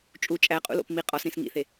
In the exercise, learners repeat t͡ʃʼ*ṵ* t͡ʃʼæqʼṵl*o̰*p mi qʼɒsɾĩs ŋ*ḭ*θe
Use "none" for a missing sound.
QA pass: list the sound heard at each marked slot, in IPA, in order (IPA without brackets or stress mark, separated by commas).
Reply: u, o̰, ḭ